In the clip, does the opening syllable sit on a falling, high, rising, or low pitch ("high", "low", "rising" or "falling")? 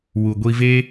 low